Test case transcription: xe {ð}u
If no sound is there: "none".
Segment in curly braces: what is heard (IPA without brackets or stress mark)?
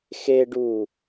ɖ